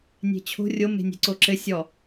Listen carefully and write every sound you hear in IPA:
nʲ e̤ t͡ɕʰ o̤ rʲ o m e̤ nʲ e̤ ǀ o ǁ ɘ sʲ ɔ

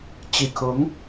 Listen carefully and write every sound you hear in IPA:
t͡ɕ i˨˩ kʰ ʊ˧˥ ŋ

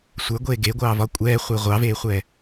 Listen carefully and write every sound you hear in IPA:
sʷ ə˞ ɡʷ eː ɡ e ɡʷ ɑː v ɒ kʷʼ ɛː χʷ e ʁʷ ɑ v eː χʷ ɛː

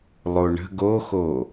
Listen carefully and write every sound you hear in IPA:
lˠ o ɳ ə̤ ɡ o x o

